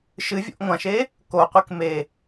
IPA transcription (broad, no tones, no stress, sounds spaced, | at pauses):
ʃ ɨ vʲ o̰ ʔ ŋʷ ã ʃ e | k o qʷ e k m e